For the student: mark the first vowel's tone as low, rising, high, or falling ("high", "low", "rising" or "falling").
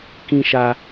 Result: high